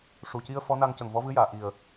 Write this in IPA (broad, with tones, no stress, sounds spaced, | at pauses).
ʂ u˨˩ c i˧ ə̯ f ɔ˧˥ n a˧ ŋ c ə˨˩ ŋ v ɔ˧˥ v ɨ˧˥ j aː˨˩˨ ʔ i˨˩ ə̯